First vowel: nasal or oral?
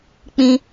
nasal